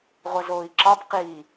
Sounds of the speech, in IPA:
ʁʷ ʌ z oː i̯ ǁ ɒ b q iː

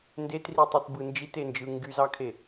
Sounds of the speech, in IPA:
n d e t r i tˤ i t b ɯ n d͡ʒ i t e n d͡ʒ ɯ ŋ ɡ y z ɑ kʰ e

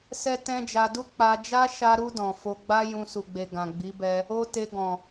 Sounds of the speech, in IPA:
s ɛ˦ t ɛ̃˦ d͡ʒ a˧ d u˦ k͡p a˧ d͡ʒ a˦ ʃ a˧ ɾ u˧ d ɔ̃˨ f o˧ ɡ͡b a˦ j ũ˧ s u˨ ɡ͡b e˨ ɡ ã˨ ɡ͡b i˨˦ b ɛ˧ | o˦ t e˧ ɡ ɔ̃˨

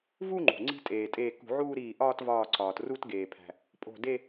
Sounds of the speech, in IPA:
v u˥˧ ŋ͡ǃ ṳ˩ ŋ͡ǀ i̤˥˧ tʼ eː˩ tʼ eː˧˩ k ṳ˧˩˧ ʕ uː˥˧ ɾ iː˧˩ ʔ ɒː˥˧ t v ɒː˧˩ ǀ ɒː˩ t r u˥˧ t ɡ eː˩ pʰ æ̤˩ | pʼ o̤˧˩ d e˥˧

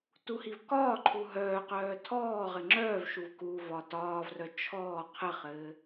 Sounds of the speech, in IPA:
t u h i v k ɒː ǃʰ u ɦ œː q œː tʰ ɔː ʁ ɘ ŋ͡ǁ œː v ʃ u v k u v ɒ t ɒː v r œ t͡ʃʰ ɔː qʰ ɘ χ ɘː

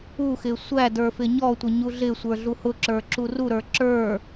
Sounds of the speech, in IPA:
u x ɪ sʷ æ d ə˞ f ɪ ɲ ɔ tʷ ɪ ɲ u ɮ ɪ sʷ ə˞ ɮ u h ʊ ǁ ə˞ ǁ u r u ɾ ə˞ ǁ ə˞

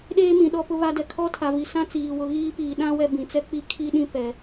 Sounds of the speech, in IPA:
ɗ eː˦ m ĩ˨ ɗ ɔ˦ p ʊ˦ β a˦ d ɛ˨ kʰ ɔ˦ tʰ a˨ v i˨ s ã˦ t͡s iː˨ w ʊ˨ ɣ iː˦ p iː˨ ɗ ã˦ w ɛ˦ b ĩ˨ t͡s ɛ˦ k͡p i˦ kʰ i˦ ɗ ĩ˦ p ɛ˨

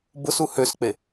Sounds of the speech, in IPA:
b ʊ s u h ø s k͡p e

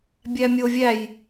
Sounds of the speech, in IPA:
bʲ æ mʲ o vʲ æ j

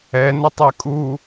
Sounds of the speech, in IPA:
ɛ n ə tˤ ɛ kʼ u

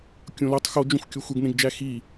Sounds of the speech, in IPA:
kʲ õ l o tˤ x o d͡ʒ õ xʷ kʲ o xʷ e ɡ n ẽ ɡ d͡ʒ æ x i

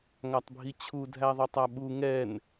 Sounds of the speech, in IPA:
ŋ a tˤ bʱ i t͡ɕʰ u dʱ æ ðˤ œ tˤ a ɓ u ŋ ɛ n

